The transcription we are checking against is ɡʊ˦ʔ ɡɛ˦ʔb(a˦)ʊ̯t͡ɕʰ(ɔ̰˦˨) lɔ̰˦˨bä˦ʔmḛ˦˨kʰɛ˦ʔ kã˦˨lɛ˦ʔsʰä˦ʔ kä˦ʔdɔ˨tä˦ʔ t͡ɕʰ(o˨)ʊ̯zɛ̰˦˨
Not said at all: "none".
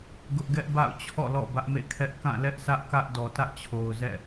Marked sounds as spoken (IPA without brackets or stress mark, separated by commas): a̰˦˨, ɔ̰˦˨, o˨